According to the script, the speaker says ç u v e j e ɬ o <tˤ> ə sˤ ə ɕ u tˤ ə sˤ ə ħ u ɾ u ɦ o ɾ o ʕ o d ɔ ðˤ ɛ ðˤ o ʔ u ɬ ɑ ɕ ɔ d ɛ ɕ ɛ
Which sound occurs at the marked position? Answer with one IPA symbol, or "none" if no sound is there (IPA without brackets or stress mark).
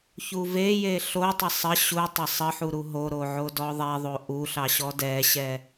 tˤ